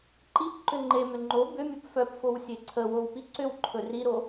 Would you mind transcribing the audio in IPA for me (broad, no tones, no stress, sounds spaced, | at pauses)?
ǃ i p ǃ ʏ ŋ͡ǃ e m ʏ ŋ͡ǃ o b ʏ mʲ ɵ p f œ p f o w sʲ e ǀʰ ə w o w p i ǀ ʏ w ǃʰ ɵ r i ɾ o